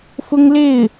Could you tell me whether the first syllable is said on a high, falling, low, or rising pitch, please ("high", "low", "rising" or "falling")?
high